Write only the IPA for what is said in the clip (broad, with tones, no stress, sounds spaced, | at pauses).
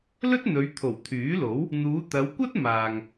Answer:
l ɵ˥ t̚ n̪ ɵ˨˧ ɥ t̪ʰ o˨˩ w t̪ʰ yː˨˥ l o˨˥ w | n̪ uː˨˧ t̪ ɐ˨˧ w kʷ ɐ˥ t̚ m aː˨ ŋ